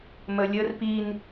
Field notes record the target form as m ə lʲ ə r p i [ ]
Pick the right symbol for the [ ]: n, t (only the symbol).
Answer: n